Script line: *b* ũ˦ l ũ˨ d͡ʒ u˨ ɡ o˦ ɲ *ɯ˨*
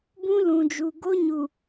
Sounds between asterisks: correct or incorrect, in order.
correct, incorrect

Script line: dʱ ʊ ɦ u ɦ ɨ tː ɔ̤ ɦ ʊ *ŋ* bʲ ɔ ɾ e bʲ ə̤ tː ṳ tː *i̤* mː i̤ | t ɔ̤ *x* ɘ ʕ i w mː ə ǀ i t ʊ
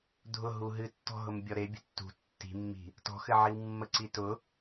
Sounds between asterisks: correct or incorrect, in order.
incorrect, correct, correct

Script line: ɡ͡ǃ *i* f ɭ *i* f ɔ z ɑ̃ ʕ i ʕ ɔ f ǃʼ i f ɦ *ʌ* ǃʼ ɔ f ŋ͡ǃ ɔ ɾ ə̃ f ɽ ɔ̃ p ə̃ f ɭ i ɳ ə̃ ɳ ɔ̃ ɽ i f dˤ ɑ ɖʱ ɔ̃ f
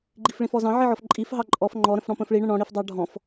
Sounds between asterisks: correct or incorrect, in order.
correct, incorrect, incorrect

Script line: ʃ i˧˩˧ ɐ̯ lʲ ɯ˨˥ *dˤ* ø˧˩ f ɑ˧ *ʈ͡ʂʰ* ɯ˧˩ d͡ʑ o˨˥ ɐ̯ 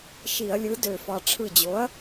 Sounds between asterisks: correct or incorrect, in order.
incorrect, correct

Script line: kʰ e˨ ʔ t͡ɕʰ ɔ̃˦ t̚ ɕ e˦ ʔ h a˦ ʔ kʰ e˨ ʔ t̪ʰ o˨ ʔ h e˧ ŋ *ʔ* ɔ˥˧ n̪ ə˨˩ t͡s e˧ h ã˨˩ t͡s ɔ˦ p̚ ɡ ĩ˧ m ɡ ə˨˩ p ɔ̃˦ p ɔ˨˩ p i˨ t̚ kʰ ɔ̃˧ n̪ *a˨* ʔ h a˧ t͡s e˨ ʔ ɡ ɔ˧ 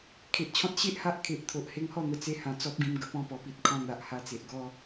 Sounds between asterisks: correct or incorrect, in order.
incorrect, correct

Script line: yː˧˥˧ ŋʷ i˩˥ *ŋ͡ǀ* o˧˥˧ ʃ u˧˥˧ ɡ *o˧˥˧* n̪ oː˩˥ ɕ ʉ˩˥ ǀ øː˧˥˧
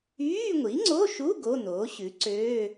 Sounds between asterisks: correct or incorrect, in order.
correct, correct

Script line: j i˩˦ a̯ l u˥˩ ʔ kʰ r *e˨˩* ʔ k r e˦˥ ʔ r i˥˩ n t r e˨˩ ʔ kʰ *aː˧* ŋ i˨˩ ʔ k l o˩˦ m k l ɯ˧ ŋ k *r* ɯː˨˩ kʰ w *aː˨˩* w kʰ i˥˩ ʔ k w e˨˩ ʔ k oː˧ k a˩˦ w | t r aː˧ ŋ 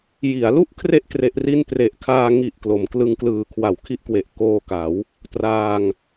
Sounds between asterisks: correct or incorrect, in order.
incorrect, correct, incorrect, incorrect

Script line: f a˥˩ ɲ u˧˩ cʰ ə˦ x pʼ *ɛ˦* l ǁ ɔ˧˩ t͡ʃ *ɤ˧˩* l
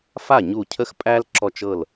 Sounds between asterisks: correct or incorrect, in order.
incorrect, correct

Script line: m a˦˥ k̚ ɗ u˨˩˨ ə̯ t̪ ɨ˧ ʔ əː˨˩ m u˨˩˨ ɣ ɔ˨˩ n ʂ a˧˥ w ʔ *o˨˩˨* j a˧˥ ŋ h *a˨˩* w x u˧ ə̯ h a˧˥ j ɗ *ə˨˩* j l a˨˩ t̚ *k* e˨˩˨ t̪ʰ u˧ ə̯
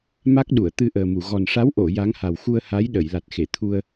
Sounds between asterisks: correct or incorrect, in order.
correct, correct, incorrect, incorrect

